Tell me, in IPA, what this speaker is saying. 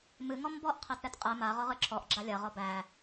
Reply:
mɨ ŋɔmbɔʔ qʰetɾɛtqʼɛ ma ʁɔʁɨǁʰɔʔ ɡ͡ǁalʲɐ ʁɔbæ

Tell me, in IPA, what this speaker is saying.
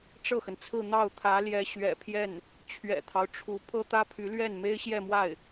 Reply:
ʈ͡ʂɤ˥˩xə˩nt͡sʰɹ̩˥˧n̪ɑ˥˩ʊ̯ t̪ʰä˧˥ljɛ˧˥ ɕɥɛ̰˨˩pʰjɛ˥˩n | t͡ɕʰɥɛ̰˨˩t̪ʰɑ˦ʊ̯ʈ͡ʂʰu˧˥ pʰɤ˥t̪ä˥pʰy˧˥lɥɛ˥˩n me˥ɪ̯ɕjɛ˥˧mwa˥˩ɪ̯

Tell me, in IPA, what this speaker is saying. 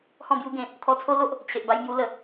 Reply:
hɔ̃˥˧bju˦ɡẽ˨˩ | t̪ʰɔ˧t͡sʰo˦lo˦ʔ | t͡ɕʰe˨ʔba˧jmju˧ lə˨˩

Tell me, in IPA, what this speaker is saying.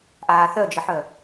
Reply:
ʔaːθœd͡ʒəħœ

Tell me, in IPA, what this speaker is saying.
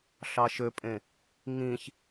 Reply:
ɬɑʃøpʼẽ | ŋĩç

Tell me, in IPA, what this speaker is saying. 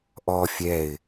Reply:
ʔɔ fʲɛɪ̯

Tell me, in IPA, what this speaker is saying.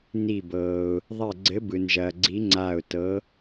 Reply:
ni˧˩bɤː˩ʊ̯ | ðˤɛ˧˩ɡ͡ǀɘ˨˥bɯ˩nʒɐː˩ ɡ͡ǀi˨˥ŋ͡ǀaː˧˩ʊ̯ tɤ˨˥

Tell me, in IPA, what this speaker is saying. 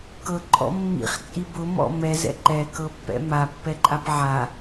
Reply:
kɤǃʼɔ̰ mːḭχt͡sʼi bʊmɔ̰ mɛzɛ̰ ǃɛkɤpːɛ̰ mapːɛǃʼap ʕa

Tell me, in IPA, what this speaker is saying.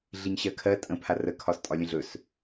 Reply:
ɮiɲɕɜkʰɜ tʼə̃pʰar əkʰɒstʼɒ lʲə̃ɮɵs

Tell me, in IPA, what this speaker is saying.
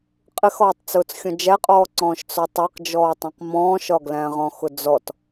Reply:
qʼɪxɒːtˤt͡sʊːt͡sxʲɔ̃ d͡ʒæqʼɔːǀɔ̃ːʃ t͡sɔtˤæq d͡ʒɔːtˤĩqmɔ̃ːʃɒ ɡlæ̃ʁɔ̃xʊd͡zɔt

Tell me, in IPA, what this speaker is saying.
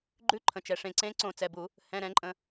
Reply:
ɡ͡ǃʉ˨˦ǃʰə̃˩t͡ʃɛ˩ ʂẽ˩ǀẽ˨˦ ǀõ˧˩˧t͡sɛ˩˧˩bu˧˩˧ | hɛ̃˩˧˩ɾɛ̃˧˩˧ǃʼə̃˩

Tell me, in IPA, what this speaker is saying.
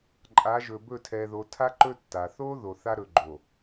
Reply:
ǃʼa˨˦ʒɵ˨bɵ˦˨ tʰɛ˨ðo˨tʰa˦ ǃɵ˦tːa˨ θo˦ ðo˨θa˦ɾɵ˨ ɡ͡ǃo˨

